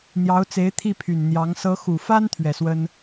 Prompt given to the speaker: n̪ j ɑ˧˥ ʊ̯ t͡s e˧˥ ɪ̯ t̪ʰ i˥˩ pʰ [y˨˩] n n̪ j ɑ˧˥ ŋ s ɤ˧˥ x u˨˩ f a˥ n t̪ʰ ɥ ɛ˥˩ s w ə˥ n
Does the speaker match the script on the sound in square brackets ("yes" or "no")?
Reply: yes